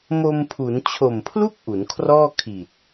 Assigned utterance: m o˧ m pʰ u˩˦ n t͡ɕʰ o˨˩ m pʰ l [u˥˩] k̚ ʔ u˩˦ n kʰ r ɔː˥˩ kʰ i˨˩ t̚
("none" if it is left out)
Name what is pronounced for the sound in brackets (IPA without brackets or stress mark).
u˥˩